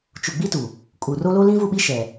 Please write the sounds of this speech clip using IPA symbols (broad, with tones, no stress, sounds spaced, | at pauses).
t͡ʃ u˨ ɡ͡b i˦ t u˨ | kʼ u˨ r o˦ l o˦ l ĩ˦ v u˦˨ ɓ i˦ ʃ ɛ˨